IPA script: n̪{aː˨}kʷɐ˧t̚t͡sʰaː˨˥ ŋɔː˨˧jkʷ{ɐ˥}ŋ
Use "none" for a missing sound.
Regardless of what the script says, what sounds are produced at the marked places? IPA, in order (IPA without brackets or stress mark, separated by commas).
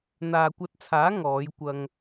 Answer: aː˨, ɐ˧